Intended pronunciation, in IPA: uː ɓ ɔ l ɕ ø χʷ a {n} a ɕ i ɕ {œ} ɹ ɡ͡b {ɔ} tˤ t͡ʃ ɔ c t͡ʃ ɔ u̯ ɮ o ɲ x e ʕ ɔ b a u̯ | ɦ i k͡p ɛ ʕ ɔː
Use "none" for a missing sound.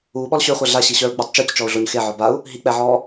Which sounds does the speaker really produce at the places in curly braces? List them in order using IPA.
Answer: ɮ, œ, ɔ

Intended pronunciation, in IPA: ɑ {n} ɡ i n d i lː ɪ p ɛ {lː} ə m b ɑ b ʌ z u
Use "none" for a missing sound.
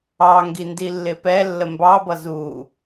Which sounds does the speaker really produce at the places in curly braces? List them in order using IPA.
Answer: ŋ, lː

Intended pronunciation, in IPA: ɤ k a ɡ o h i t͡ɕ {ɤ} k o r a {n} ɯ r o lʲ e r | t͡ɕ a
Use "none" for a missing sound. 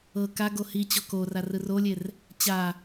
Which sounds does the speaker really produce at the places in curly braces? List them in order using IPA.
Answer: ɔ, r

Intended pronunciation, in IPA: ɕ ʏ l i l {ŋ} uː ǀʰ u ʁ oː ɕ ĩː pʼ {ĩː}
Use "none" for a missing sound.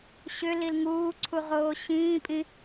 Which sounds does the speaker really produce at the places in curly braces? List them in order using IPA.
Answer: ŋ, ĩ

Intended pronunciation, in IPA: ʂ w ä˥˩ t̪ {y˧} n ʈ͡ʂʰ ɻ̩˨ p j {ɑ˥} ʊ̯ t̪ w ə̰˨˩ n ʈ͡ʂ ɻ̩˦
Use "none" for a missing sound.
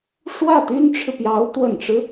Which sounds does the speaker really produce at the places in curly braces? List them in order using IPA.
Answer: y˥, ɑ˧˥

